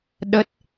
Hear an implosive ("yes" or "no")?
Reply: yes